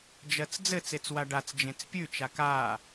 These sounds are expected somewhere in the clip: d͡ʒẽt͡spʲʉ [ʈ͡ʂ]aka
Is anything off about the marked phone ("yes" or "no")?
yes